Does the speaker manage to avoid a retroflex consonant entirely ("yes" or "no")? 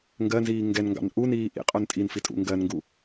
yes